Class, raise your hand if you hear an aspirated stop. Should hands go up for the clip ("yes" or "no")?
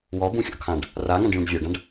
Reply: yes